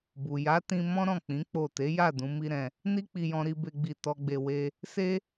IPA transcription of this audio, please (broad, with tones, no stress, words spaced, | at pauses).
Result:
bu˨ ja˨˦tĩ˧ mɔ̃˦ɾɔ̃˦˨k͡pĩ˨˦ k͡po˦˨ te˨˦ja˦˨ dũ˨˦mi˦ ɾɛ̃˧ | ni˦k͡pi˧jɔ̃˧ ɾi˦be˦ɡ͡bi˦˨ tɔ˧ɡ͡be˧ we˦ | se˦